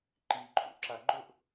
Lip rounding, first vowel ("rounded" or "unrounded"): unrounded